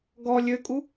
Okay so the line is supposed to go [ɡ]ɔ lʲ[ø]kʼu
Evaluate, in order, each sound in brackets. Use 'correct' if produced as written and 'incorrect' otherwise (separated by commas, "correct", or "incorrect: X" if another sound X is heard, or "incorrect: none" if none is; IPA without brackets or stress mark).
correct, correct